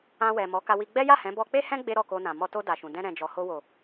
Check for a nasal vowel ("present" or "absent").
present